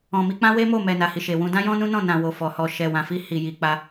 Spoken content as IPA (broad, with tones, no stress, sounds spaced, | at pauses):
ɔ̃˨ m i˧ k͡p ã˦ w e˦ m o˦˨ m ɛ˨ n a˨ h i˨ ʃ e˨ w ũ˧ d ã˦ j ɔ̃˦ n ũ˦ n ɔ̃˦˨ n ã˨ w o˨ f ɔ˨ h ɔ˨ ʃ ɛ˨ w ã˨ f i˧ h i˨ j i˨ k͡p a˧